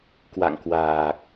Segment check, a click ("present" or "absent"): absent